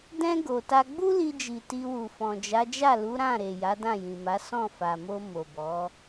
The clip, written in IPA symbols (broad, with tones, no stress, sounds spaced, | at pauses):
d ɛ̃˧ ɡ o˨ t a˧ ɡ͡b u˦ l i˧ d͡ʒ i˨ t i˧ w u˨ f ɔ̃˨ d͡ʒ a˨˦ d͡ʒ a˦˨ l u˨˦ ɾ ã˦˨ ɾ e˨ j a˨˦ d ã˦˨ j ĩ˨ m a˨˦ s ɔ̃˦˨ f a˨ m o˧ m o˨ b ɔ˨˦